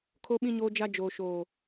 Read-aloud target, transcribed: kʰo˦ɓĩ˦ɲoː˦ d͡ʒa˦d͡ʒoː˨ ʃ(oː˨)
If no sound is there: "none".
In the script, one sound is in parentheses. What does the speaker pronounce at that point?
oː˨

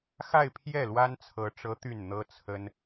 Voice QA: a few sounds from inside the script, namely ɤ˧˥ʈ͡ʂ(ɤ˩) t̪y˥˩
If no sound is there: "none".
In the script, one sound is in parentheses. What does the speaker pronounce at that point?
ɤ˧˥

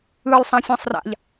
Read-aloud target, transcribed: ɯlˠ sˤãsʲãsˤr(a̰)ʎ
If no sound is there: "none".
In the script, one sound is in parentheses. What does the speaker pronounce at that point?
a̰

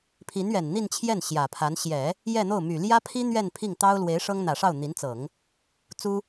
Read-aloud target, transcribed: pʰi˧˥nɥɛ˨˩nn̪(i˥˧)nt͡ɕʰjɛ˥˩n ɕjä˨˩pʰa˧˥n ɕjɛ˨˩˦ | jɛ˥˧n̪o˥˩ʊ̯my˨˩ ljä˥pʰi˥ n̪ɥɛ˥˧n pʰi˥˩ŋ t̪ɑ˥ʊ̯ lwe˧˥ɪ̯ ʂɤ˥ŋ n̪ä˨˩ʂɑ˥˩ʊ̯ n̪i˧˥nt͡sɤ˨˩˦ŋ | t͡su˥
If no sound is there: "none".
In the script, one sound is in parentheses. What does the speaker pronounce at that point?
i˥˧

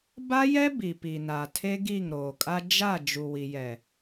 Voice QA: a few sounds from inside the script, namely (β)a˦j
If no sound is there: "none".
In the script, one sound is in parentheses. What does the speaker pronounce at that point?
b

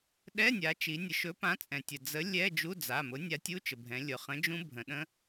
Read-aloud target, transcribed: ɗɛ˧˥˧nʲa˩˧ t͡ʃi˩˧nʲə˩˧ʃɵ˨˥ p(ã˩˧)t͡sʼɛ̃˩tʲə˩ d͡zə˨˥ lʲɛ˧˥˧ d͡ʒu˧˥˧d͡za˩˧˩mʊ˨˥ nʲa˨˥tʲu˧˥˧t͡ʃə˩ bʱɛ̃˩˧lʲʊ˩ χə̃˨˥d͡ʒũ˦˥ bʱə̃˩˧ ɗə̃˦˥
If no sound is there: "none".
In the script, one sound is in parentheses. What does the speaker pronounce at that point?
ã˨˥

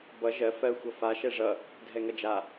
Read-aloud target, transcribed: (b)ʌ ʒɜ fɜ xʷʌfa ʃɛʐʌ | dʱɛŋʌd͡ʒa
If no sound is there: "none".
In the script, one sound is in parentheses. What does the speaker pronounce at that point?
b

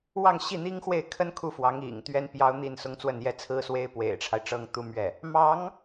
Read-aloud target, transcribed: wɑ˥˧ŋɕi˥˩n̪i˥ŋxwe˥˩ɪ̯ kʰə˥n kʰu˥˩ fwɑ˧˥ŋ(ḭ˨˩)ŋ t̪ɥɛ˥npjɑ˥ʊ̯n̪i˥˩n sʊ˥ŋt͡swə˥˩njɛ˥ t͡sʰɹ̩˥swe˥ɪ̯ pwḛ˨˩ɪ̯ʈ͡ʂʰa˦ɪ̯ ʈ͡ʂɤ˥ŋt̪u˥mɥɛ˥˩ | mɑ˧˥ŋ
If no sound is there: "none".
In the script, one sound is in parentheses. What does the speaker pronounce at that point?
ḭ˨˩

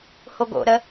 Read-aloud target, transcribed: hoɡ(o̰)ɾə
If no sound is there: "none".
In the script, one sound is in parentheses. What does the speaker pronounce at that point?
o̰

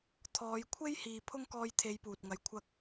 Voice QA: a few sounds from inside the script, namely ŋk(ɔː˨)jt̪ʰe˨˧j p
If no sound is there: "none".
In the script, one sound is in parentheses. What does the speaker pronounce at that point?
ɔː˧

